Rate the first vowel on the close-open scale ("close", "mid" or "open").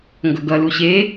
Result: mid